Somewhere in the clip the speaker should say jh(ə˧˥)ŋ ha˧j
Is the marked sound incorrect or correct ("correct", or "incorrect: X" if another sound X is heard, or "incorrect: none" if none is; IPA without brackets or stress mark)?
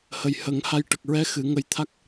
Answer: incorrect: ə˨˩˦